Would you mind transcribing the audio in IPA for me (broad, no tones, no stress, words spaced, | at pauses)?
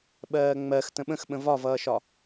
ɓɜːŋ͡mɜx tə̃ɓə̃xɓə̃ vɒvʌːʃɒ